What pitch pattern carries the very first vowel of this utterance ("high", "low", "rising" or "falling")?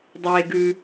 low